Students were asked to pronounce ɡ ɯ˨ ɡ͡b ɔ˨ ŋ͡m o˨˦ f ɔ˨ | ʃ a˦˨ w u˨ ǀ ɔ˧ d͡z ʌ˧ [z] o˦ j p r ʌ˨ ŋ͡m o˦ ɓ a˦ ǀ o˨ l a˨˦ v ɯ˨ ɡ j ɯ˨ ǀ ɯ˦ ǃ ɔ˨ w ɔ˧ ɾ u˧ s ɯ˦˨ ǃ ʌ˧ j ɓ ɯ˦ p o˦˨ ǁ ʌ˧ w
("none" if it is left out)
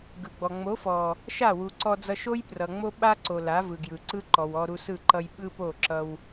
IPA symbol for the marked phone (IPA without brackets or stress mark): ʃ